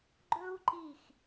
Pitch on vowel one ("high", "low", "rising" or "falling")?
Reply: high